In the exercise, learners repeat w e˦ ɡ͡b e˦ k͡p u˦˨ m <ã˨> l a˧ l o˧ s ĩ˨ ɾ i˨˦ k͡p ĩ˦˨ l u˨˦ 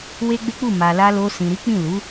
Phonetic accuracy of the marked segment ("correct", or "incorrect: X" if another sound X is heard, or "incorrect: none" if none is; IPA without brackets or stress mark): incorrect: a˨